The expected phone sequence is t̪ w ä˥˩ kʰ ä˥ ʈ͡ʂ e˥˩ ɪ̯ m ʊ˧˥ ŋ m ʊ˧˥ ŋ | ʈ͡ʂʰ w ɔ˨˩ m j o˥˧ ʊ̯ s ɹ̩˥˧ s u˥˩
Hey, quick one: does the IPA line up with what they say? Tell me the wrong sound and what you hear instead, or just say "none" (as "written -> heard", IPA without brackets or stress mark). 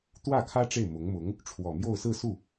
none